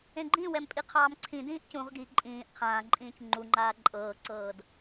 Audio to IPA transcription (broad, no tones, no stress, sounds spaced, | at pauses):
ẽ ɡ͡ǃ ĩ w ɛ m pʼ i qʰ ɑː m ǀʰ ĩ d ĩː ʔ c ũ ʁ ɡ i ǃʼ ĩː ʔ qʰ ãː ǃʼ ĩː c ŋ͡ǃ u ŋ͡ǃ aː ǃʼ ɤː ǀ ɤː d